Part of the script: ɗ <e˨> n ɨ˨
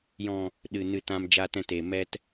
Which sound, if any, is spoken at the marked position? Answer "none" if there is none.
ɨ˨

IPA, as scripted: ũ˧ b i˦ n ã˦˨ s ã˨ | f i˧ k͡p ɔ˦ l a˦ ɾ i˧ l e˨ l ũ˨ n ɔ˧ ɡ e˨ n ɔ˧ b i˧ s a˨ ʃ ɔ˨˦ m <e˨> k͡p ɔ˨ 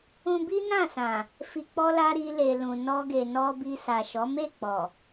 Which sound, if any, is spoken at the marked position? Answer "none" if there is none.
e˦˨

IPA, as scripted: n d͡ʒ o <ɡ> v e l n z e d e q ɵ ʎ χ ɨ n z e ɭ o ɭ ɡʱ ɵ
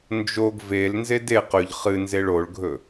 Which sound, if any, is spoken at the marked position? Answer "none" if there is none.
ɡ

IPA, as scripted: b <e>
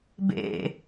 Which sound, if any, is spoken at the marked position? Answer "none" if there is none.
ḛ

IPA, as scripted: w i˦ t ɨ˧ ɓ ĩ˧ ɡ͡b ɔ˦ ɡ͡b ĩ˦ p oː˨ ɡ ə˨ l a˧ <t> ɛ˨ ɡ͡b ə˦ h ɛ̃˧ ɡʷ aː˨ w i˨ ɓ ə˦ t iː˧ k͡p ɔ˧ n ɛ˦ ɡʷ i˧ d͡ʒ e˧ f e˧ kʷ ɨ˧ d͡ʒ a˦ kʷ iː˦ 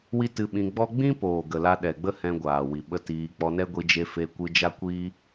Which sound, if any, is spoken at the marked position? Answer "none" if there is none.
ɗ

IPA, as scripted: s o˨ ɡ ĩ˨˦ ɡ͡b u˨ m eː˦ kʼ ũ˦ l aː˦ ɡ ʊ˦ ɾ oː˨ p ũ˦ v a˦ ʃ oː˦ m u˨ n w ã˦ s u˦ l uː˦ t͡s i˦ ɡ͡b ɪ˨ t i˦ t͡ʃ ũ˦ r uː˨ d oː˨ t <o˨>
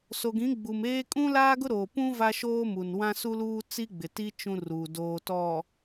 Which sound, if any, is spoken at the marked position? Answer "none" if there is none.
ɔ˨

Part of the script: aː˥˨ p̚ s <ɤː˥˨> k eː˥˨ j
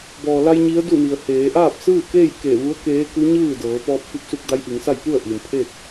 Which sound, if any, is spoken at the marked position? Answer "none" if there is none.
ɯː˥˨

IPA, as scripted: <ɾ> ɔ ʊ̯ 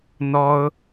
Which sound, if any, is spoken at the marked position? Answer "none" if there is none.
n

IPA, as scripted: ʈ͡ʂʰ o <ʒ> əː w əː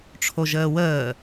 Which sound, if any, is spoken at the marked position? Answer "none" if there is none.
ʒ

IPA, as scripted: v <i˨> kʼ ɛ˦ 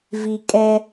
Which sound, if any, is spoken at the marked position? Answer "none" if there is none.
i˨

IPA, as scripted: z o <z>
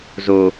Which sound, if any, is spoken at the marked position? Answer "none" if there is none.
none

